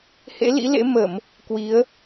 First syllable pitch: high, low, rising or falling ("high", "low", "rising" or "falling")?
rising